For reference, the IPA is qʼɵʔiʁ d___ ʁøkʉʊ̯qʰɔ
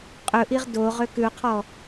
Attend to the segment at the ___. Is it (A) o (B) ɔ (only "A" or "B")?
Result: A